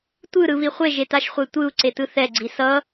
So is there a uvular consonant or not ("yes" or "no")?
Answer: yes